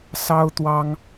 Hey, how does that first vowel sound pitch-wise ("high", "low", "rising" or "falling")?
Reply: high